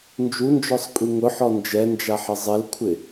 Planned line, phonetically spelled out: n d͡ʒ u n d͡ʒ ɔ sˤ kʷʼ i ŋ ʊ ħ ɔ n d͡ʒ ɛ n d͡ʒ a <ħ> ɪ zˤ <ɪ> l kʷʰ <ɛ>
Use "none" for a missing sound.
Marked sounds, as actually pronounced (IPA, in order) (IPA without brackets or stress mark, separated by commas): ħ, ɪ, ɪ